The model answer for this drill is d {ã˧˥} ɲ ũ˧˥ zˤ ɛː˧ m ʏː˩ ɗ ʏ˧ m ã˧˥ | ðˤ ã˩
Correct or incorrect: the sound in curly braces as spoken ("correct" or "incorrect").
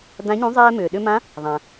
correct